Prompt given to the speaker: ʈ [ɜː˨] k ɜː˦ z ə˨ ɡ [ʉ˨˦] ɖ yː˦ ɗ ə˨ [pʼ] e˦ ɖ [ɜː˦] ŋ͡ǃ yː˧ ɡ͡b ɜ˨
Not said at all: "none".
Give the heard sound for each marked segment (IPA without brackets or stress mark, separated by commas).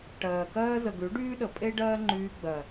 ɜː˨, ʉ˨˦, pʼ, ɜː˦